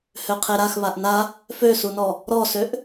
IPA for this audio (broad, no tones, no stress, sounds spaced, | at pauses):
h ø qʰ e ɾ a x β a ʔ n a | f ø s u n ɔ | ɾ ɔ s ø ʔ